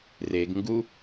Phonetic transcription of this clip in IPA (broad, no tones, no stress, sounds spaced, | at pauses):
r e ɡ ŋ ɡ u